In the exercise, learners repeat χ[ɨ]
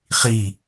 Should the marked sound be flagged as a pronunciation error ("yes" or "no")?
yes